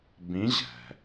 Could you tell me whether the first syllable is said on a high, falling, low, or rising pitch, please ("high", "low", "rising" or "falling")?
rising